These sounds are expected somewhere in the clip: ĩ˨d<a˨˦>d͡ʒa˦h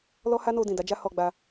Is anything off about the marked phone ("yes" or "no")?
no